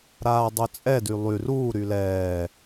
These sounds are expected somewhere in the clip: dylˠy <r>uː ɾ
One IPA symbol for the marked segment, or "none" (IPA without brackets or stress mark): r